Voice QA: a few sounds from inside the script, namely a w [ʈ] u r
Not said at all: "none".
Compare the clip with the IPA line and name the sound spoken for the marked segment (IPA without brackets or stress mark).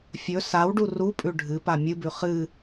ɖ